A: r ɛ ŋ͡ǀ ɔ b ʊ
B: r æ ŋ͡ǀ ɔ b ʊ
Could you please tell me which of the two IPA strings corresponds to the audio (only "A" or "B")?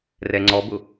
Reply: A